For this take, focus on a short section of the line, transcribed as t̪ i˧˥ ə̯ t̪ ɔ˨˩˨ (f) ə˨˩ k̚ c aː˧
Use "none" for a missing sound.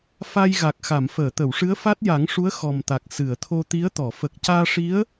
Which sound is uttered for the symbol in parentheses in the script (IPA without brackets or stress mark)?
f